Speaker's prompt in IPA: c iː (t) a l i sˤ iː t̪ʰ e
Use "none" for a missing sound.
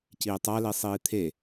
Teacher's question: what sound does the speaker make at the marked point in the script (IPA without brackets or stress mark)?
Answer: tˤ